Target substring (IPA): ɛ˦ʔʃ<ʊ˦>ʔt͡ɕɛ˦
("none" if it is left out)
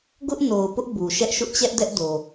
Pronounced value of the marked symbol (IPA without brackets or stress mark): ʊ˦